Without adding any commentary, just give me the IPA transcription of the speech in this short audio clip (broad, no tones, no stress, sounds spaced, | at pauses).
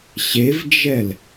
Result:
ɕ e v d͡ʒ ɛ l